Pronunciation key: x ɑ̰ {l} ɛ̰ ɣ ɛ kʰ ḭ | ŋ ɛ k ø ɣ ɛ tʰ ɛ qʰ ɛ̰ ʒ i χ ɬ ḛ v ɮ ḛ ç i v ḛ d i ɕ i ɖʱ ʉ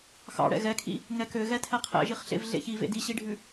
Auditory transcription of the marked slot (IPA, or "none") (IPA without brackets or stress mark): ɽ